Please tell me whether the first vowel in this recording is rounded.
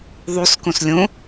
yes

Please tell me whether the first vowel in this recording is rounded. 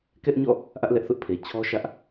no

